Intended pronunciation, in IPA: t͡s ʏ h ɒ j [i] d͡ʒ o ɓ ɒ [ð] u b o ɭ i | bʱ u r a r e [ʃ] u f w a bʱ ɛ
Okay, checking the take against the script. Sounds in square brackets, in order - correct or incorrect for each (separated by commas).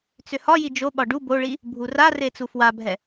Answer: correct, incorrect, incorrect